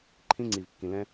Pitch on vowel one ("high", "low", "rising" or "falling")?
high